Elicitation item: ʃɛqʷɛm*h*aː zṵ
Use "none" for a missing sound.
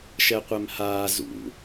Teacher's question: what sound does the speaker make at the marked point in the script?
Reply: h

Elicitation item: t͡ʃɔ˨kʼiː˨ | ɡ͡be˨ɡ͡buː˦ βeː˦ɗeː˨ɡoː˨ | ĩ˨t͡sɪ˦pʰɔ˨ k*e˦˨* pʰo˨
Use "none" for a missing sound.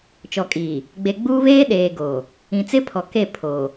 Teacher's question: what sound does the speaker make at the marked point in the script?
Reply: e˦˨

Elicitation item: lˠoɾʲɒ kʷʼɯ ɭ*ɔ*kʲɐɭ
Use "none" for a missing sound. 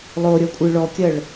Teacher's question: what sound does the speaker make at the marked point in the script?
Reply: ɔ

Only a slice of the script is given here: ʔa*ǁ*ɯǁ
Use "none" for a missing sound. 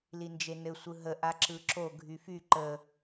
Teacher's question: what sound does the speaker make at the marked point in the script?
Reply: ǁ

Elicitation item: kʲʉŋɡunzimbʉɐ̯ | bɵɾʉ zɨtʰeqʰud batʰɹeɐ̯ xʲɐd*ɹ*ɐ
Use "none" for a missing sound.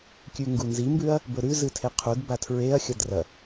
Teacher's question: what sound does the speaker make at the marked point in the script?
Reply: r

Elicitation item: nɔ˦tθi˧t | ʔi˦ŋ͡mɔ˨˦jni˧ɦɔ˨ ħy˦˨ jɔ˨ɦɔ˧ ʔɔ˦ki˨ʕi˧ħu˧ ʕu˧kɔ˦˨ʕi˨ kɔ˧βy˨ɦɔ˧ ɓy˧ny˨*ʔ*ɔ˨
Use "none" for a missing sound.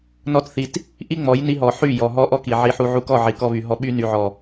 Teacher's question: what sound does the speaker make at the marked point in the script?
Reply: ʕ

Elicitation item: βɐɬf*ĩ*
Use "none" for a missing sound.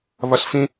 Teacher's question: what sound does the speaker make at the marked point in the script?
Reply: ĩ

